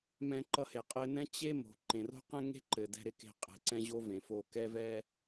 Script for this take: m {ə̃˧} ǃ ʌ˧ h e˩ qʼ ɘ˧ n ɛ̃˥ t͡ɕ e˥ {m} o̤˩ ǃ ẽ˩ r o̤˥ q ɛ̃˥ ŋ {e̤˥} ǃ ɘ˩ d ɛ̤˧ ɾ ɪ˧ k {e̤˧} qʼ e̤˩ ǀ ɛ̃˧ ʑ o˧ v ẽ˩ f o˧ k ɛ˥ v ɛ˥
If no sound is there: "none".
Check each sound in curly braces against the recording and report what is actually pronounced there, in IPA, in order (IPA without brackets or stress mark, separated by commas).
ɛ̃˧, m, e̤˥, e̤˧